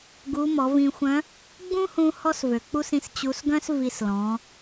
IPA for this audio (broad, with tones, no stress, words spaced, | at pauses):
ɡu˧˥ mɔ˩˧vĩ˧xʷœ̃˧˥ | ɡ͡bũ˥hũ˧ hɔ˥svø˩ k͡pu˥sĩ˧˥s t͡ɕu˧˥s ɡœ̃˥s vi˧slɔ̃˩˧